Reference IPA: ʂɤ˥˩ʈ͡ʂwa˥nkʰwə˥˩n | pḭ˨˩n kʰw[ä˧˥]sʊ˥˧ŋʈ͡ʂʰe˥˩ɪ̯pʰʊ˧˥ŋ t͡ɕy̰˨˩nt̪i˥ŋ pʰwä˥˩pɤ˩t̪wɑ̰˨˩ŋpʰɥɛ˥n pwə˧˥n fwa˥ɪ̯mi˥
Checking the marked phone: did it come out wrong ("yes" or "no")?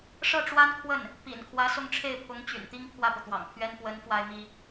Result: no